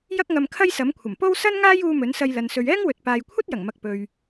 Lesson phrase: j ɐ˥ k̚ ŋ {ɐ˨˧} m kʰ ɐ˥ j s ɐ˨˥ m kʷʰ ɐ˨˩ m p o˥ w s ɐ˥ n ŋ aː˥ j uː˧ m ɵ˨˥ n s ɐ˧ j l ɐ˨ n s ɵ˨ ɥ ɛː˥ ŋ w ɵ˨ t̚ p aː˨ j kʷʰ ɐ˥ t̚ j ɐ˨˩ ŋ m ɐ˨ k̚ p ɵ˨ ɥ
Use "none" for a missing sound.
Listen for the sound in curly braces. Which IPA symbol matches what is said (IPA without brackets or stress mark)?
ɐ˧